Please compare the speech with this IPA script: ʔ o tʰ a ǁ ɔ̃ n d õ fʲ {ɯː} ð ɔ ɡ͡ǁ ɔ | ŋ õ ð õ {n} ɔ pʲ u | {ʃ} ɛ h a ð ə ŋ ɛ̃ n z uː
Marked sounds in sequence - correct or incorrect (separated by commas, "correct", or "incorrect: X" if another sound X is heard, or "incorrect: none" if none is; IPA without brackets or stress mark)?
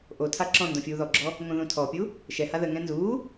incorrect: uː, incorrect: tʰ, correct